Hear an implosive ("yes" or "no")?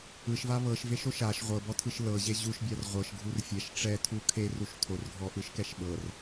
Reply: yes